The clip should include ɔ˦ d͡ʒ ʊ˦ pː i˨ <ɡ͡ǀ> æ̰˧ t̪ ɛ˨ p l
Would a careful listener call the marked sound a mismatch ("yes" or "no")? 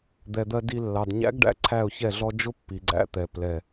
no